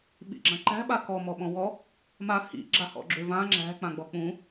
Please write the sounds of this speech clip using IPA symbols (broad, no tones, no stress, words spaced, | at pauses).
ɓḭɡ͡ǁãǃæ̤ ɓakɔ mɔɓɔ̃wɔ | ma hḭ ɡ͡ǁahɔ̰ɡ͡ǁʏ vã ŋ͡ǁæ̤ k͡pãɡ͡bɔk͡pũ